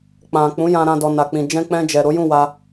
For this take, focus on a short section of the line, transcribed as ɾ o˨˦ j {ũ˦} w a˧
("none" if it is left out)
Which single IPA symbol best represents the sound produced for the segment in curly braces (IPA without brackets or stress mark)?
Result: ũ˦˨